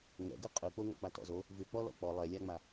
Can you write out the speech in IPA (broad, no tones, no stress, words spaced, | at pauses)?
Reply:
ŋɛ̰ɡʉ qʼʉk͡poŋɔ̰k͡pa tɔ̰zo | vʉk͡pɔlɔ̰ k͡pɔ lˠɛlʲaŋ͡ma